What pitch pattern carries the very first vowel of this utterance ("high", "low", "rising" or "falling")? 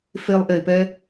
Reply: high